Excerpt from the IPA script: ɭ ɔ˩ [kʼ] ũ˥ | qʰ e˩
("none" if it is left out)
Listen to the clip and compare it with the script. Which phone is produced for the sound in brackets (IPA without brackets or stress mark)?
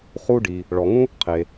ŋ